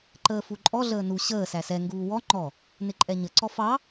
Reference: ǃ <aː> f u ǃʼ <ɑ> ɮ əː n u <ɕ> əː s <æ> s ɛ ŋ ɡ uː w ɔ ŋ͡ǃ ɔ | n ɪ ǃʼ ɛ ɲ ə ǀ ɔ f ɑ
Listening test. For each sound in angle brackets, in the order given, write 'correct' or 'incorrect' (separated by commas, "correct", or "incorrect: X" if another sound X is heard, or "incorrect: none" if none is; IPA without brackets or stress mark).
incorrect: əː, incorrect: ɔ, correct, correct